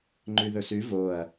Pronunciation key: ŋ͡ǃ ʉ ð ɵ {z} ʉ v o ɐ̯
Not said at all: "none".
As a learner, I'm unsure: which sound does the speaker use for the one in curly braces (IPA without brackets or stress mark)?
s